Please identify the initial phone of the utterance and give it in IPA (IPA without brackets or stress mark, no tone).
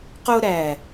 q